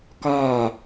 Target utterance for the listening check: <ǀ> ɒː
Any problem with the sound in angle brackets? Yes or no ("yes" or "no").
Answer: yes